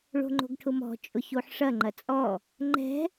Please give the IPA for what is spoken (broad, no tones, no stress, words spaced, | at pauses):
ɭo̤ŋ͡ǃo̤ɡʈʰʊmɔ̤ t͡ʃʼʊçoħʂɐ ŋ͡ǃɐt͡sʼɔ | ŋ͡ǃɛ̤